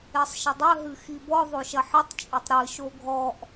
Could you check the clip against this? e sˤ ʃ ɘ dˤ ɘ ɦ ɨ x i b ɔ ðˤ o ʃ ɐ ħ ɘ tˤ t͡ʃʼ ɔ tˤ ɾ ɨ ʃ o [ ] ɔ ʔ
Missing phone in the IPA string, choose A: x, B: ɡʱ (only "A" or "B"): B